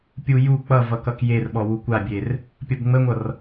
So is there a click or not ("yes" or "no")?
no